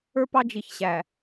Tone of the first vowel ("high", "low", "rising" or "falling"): high